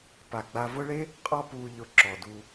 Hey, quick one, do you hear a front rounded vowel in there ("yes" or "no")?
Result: no